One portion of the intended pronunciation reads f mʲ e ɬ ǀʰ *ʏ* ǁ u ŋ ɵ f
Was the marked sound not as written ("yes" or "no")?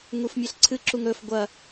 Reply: yes